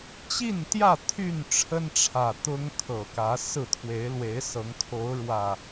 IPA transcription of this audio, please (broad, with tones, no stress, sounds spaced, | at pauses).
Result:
t͡ɕ i˥˨ n t̪ j ä˥˨ t̪ʰ y˥˨ n ʈ͡ʂʰ ə˦ n ʈ͡ʂʰ ä˨˩ t̪ ʊ˦ ŋ kʰ ɤ˨˩ k ä˨˦ s ɹ̩˥˨ t̪ʰ w e˨˦ ɪ̯ l w e˨˦ ɪ̯ s ɤ˨˦ ŋ kʰ o˨˦ ʊ̯ ɻ w ä˨˩